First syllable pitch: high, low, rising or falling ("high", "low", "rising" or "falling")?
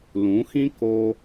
rising